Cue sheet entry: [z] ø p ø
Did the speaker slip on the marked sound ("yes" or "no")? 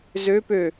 no